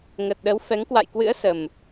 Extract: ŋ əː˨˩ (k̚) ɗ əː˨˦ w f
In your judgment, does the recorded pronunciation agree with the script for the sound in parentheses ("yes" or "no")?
no